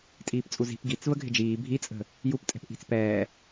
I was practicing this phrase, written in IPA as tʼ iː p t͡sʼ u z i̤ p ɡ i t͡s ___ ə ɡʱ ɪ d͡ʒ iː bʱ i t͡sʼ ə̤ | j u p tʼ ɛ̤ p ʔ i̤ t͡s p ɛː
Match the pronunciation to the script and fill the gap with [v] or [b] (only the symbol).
v